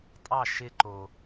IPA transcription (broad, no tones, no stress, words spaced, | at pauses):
tʼɑ ʃɪ ǃo